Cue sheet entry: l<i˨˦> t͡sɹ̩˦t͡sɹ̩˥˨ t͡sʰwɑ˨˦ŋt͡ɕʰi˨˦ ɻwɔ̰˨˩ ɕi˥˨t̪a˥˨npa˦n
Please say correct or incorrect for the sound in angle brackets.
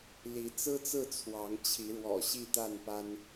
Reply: correct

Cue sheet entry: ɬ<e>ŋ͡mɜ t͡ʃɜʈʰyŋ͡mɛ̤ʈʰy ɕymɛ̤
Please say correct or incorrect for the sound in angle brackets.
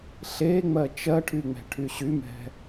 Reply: correct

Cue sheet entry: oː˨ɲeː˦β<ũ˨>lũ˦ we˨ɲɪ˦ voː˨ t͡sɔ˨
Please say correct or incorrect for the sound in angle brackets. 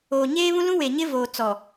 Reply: incorrect: ũ˦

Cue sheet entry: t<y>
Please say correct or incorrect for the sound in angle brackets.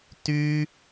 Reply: correct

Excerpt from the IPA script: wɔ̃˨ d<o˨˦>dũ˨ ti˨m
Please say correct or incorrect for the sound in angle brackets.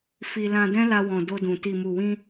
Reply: incorrect: o˧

